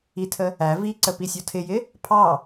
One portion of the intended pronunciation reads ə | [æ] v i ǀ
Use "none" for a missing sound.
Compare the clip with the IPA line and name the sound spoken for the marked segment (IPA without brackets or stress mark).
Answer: æ